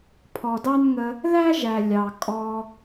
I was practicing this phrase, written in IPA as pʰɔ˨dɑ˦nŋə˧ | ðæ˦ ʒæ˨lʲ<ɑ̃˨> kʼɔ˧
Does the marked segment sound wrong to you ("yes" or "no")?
yes